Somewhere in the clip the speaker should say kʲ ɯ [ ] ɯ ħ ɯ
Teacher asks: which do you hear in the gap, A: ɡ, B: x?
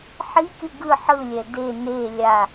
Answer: A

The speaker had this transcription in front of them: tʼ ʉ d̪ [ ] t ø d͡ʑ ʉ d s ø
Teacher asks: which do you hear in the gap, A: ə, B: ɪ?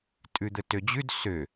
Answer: A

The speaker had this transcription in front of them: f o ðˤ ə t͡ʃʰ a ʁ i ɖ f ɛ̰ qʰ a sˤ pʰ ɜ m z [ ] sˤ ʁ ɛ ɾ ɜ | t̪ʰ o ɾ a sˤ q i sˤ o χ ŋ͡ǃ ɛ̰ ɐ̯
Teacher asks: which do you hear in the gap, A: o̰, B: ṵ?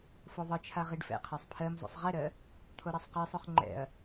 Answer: A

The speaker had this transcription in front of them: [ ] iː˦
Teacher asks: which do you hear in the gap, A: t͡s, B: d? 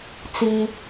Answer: A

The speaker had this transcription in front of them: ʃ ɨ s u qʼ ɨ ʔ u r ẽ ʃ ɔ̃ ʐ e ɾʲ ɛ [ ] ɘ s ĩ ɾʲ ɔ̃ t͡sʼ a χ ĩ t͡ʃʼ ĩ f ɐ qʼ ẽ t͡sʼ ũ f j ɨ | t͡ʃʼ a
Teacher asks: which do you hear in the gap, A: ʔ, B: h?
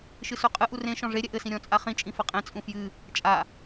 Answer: A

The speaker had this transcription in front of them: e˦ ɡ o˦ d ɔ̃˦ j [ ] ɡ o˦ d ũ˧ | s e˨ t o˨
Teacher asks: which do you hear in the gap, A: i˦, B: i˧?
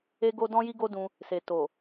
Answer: A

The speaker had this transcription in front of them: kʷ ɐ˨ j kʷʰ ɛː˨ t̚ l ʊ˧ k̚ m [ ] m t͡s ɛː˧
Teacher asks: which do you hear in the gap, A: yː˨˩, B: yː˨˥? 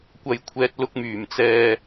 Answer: A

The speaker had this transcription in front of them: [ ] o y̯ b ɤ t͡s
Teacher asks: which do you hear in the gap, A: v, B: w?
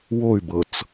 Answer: B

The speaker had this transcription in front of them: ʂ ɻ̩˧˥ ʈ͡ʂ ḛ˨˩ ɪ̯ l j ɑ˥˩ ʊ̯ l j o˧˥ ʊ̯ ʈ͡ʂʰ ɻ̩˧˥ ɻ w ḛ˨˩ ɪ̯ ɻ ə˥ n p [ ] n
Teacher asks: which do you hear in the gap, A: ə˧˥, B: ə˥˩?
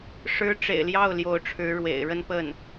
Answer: B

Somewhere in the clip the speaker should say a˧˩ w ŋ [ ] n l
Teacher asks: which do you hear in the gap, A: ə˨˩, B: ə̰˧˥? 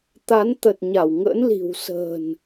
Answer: B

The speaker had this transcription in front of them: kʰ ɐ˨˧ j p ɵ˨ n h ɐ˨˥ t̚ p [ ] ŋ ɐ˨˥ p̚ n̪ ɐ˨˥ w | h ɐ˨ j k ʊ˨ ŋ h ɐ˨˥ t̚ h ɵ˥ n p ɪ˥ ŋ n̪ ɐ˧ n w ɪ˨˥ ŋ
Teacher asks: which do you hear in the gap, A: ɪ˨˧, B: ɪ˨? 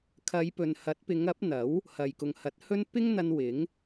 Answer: A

